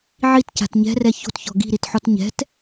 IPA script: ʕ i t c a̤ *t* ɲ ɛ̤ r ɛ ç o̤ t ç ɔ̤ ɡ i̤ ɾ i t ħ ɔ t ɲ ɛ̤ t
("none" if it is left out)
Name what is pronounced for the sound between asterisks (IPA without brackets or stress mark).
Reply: t